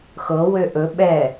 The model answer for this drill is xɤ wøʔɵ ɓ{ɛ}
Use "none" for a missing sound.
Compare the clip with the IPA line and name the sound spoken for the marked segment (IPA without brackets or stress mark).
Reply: ɛ